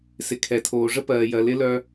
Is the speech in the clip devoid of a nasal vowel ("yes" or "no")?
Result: yes